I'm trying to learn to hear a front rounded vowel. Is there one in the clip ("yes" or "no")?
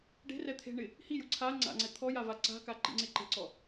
no